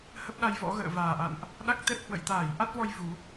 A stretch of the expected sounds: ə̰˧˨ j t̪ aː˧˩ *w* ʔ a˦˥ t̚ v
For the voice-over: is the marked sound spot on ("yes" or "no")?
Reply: no